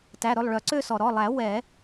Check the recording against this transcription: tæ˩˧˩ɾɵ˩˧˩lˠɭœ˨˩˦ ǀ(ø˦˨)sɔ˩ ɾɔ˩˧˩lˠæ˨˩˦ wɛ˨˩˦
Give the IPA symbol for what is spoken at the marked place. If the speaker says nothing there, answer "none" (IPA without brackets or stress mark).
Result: ø˦˨